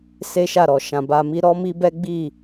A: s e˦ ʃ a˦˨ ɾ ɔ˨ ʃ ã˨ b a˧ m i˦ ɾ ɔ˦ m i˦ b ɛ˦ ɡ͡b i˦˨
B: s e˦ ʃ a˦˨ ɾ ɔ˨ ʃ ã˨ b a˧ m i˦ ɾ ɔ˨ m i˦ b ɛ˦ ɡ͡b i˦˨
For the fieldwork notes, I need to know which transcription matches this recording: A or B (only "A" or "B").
A